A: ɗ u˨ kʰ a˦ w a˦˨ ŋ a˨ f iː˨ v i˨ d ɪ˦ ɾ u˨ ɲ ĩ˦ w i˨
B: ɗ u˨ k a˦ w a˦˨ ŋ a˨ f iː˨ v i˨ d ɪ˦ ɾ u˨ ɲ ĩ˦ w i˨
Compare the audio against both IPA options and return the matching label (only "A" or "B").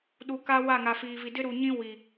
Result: B